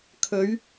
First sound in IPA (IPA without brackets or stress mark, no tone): kʰ